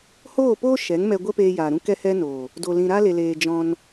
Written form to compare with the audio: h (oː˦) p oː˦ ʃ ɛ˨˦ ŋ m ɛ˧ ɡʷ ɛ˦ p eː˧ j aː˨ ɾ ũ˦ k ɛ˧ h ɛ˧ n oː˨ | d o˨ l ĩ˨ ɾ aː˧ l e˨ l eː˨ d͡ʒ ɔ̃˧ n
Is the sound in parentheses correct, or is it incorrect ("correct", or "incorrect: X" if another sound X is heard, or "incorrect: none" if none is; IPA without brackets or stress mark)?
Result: incorrect: oː˦˨